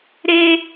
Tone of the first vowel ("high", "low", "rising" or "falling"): high